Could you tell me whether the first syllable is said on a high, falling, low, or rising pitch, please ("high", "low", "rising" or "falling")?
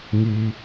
low